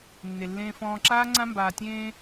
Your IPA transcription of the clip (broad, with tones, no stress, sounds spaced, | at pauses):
nː e˨ lː ẽː˨ f ɔ̃ː˨ ǁ aː˦ ŋ͡ǀ ã˦ m b aː˨ tʲ ẽː˦